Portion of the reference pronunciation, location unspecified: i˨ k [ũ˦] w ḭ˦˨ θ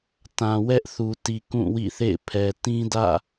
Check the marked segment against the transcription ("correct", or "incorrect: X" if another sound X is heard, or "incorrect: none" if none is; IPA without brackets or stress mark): incorrect: ũ˦˨